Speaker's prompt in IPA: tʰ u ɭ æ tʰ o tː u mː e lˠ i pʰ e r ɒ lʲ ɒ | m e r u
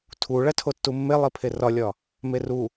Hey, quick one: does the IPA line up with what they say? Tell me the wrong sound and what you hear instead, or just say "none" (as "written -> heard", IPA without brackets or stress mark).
none